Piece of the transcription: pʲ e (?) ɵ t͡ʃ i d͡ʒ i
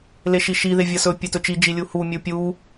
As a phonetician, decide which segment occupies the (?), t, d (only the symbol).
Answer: t